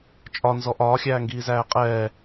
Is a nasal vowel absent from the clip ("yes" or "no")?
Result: yes